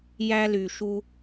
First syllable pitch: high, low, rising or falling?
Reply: high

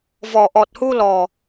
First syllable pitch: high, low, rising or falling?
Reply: low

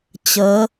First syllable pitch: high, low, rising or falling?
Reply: rising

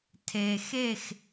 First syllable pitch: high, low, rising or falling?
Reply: low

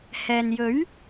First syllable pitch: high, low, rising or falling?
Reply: low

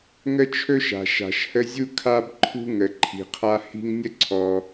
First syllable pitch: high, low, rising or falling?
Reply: high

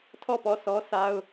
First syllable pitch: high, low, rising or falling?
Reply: falling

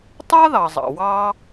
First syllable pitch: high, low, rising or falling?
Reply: high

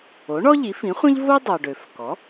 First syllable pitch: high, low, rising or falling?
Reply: rising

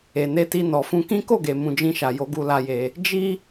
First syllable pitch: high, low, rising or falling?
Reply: low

